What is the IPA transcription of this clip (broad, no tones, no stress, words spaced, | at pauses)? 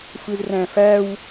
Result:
fɯzræ̃fæw